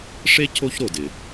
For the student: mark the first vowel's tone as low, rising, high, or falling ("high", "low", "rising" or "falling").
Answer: high